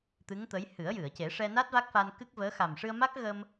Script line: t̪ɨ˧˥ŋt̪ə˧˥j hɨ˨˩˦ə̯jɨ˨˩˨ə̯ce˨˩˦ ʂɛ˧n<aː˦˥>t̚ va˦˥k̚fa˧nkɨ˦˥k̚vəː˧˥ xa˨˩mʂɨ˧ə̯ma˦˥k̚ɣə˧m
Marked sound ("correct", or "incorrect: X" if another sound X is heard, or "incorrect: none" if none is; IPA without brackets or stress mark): incorrect: a˦˥